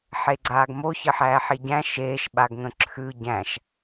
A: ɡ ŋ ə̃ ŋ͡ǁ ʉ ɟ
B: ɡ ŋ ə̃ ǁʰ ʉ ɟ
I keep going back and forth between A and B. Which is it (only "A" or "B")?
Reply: B